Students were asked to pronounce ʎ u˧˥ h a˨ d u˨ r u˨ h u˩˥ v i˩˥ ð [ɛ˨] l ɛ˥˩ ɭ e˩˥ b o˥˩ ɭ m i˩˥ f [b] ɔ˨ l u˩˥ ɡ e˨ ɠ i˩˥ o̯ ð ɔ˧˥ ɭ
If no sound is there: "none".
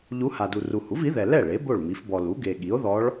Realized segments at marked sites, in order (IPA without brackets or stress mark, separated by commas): ɛ˨, b